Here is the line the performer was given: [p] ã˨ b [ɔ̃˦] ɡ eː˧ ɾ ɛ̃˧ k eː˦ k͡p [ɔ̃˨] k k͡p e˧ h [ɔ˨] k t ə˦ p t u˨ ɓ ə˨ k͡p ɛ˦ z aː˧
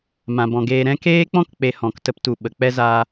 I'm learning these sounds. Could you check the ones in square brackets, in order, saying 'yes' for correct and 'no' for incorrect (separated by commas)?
no, no, no, no